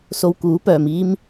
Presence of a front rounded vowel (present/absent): present